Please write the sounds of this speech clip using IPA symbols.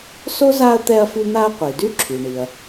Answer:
so˥za˦ɐ̯ t̪ɛ˦ɐ̯fy˦n̪a˦ɐ̯ qʷi˩dy˥ ǁʰy˩ɳi˩ɐ̯

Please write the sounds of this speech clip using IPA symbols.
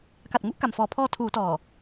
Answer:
ka˨˩t̚ŋu˦˥ʔ ka˨˩mfɔː˨˩ pʰɔː˧tʰuː˩˦tɔː˨˩

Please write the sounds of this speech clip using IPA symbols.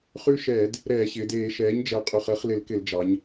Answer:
χʉ˦ʃɛː˧˩˧d | ɾɛː˧˩˧ɕɪː˩˧d eː˧˩˧ʃɛː˩˥ɲd͡ʒɛ˨˩ qʼʉ˨˩χəː˩˥χlɪ˧˩˧lkɪ˧˩˧l d͡ʒɑ˩˧ɲ

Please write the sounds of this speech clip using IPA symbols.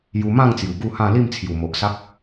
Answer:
ju˧mã˥˧ŋt͡sju˨˩ ɡu˥˧hã˥˧ li˥˧mt͡sʰju˨˩mo˨ʔsa˦k̚

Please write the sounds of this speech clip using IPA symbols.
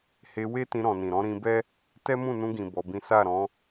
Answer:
he˧we˦ tĩ˧ɾɔ̃˨nĩ˨ ɾɔ̃˨˦ɾĩ˧bɛ˦ | tɛ˦mũ˦˨nũ˧ɡĩ˨ bɔ˨˦bĩ˦ sa˦˨ɾɔ̃˨˦

